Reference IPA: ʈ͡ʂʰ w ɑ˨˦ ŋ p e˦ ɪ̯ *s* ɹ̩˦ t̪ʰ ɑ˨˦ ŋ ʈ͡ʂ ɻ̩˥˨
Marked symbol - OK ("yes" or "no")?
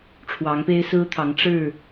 yes